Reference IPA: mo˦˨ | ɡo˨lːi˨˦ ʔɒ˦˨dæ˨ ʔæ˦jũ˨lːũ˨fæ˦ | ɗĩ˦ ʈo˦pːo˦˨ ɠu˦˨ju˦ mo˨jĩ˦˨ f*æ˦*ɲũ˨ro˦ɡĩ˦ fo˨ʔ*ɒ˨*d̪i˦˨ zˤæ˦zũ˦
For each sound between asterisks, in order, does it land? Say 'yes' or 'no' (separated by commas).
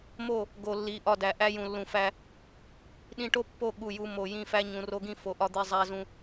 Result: yes, no